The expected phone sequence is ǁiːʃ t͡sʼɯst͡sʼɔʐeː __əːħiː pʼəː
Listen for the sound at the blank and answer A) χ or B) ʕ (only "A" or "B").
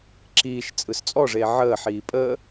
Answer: B